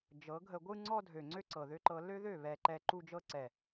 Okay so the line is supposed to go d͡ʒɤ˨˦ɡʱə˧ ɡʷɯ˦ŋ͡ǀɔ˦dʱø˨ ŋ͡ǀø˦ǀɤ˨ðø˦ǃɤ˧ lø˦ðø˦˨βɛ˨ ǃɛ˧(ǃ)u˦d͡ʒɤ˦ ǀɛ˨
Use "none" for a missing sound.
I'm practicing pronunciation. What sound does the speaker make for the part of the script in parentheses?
ǃ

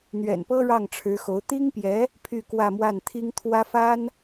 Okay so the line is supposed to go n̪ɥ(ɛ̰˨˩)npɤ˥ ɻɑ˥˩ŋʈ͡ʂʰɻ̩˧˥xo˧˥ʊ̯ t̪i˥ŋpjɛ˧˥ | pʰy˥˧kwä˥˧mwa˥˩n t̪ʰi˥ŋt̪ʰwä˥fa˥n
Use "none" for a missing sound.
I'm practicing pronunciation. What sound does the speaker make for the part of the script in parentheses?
ɛ̰˨˩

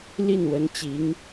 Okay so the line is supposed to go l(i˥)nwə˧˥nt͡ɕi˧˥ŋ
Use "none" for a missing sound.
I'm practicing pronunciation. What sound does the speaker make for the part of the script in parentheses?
i˥˩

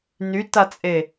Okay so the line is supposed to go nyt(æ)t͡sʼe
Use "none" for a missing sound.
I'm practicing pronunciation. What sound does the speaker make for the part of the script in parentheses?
a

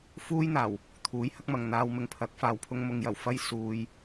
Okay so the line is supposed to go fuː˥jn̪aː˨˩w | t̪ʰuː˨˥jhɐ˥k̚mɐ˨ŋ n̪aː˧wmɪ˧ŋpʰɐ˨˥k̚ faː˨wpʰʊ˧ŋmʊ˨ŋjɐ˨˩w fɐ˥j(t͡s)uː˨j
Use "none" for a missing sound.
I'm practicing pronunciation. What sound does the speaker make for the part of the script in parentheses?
s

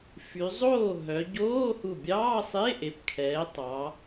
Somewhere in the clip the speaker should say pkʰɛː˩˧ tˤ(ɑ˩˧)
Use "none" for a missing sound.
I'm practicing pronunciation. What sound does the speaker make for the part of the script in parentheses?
ɑ˩˧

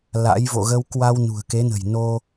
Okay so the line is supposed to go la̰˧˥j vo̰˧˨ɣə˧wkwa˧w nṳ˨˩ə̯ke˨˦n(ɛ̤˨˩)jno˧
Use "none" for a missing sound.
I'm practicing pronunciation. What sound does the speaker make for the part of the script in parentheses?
ə̤˨˩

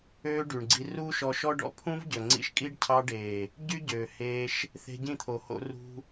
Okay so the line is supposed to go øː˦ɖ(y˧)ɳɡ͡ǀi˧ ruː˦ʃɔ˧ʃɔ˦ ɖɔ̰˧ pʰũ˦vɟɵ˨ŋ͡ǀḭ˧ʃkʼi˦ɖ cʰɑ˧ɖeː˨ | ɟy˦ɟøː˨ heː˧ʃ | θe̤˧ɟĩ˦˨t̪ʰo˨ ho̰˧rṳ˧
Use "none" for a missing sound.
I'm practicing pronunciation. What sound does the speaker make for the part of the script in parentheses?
y˨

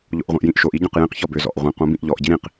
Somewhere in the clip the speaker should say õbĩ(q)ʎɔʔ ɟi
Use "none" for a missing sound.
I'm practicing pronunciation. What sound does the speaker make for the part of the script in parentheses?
ʔ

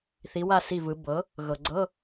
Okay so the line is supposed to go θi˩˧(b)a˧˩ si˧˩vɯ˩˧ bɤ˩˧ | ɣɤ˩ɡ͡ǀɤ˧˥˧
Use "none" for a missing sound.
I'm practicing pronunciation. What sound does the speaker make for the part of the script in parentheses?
w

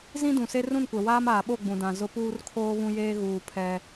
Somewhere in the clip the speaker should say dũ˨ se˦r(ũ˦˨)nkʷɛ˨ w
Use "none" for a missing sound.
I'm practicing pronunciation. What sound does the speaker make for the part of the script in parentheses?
ũ˦˨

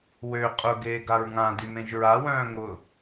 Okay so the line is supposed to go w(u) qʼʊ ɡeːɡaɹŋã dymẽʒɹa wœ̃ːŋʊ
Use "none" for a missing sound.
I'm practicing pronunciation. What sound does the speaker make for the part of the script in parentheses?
ø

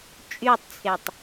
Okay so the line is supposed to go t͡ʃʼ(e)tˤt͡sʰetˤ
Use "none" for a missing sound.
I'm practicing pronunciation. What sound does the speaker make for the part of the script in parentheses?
y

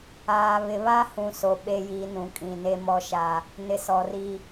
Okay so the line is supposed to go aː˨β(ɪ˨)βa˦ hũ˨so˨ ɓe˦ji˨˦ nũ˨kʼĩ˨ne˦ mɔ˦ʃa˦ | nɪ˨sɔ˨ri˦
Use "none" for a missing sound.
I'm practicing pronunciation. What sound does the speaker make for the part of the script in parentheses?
ɪ˨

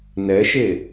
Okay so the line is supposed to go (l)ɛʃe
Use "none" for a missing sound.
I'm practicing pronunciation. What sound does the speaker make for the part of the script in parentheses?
n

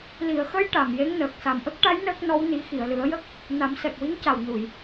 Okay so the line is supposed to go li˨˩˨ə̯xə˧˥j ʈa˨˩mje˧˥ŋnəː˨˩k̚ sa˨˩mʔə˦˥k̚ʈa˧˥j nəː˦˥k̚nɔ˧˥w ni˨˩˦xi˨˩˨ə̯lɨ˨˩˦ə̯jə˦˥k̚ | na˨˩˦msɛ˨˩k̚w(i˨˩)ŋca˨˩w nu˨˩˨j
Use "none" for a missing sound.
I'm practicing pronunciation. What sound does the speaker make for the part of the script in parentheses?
i˧˥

